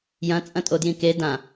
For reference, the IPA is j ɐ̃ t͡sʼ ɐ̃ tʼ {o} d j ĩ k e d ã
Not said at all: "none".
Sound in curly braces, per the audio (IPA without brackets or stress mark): o